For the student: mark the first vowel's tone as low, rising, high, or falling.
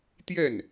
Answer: falling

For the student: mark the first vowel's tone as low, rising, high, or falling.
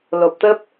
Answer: low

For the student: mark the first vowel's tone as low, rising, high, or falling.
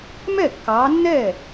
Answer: falling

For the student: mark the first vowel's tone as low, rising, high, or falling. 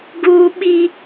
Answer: high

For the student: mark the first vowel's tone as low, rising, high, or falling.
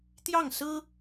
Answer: falling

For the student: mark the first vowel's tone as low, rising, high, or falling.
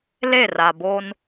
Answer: falling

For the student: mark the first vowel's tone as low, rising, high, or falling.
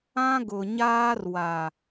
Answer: high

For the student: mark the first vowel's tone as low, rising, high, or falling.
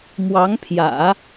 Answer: rising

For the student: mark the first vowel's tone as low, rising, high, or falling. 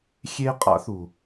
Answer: high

